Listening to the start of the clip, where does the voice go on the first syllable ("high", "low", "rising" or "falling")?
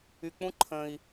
low